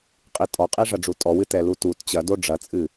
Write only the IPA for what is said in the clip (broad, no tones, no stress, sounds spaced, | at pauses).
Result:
qʼ i tʼ ɔ qʼ i ʐ ɐ ɖ͡ʐ u tʼ ɔ w ɨ t ɛ l u t u t t͡ɕ ɐ d o ɖ͡ʐ ɐ t͡sʼ ɨ